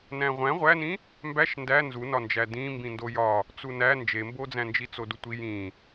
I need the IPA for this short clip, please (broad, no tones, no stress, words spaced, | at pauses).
næ̃ʁʷæ̃ ʁʷænĩ | mbæʃ ndæ nzunɒnd͡ʒæ dĩ mbĩndojɒ | t͡sunæ nd͡ʒembod͡zæ̃nd͡ʒi t͡sodutʷi jĩ